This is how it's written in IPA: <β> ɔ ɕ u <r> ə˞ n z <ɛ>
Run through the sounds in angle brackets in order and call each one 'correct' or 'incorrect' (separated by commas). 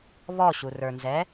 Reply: correct, correct, correct